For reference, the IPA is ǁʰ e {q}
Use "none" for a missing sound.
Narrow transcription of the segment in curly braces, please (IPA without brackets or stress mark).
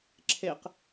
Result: q